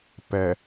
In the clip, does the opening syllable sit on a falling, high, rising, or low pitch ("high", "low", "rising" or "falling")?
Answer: low